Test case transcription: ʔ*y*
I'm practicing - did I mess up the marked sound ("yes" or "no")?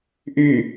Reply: no